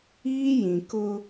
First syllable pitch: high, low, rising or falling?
high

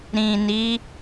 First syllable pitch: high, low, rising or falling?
low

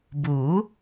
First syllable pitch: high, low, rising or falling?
rising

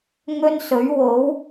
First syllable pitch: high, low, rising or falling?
high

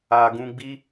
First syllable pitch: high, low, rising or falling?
low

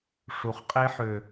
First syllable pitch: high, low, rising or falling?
low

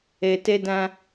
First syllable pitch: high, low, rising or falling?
low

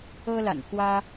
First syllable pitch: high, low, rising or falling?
high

